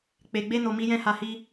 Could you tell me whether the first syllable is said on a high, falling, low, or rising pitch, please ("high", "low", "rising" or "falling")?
low